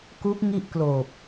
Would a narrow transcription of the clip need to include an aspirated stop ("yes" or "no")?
no